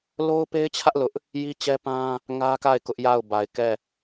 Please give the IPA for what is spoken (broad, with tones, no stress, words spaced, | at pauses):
lo˦ʊ̯pe˦ɪ̯t͡ɕʰä˦ʔ lʊ˦ʔ | ji˦t͡ɕɛ˦pã˦ | ŋä˦ka˦˨ɪ̯ kʊ˦ʔja˦˨ʊ̯ba˨ɪ̯kɛ˦˨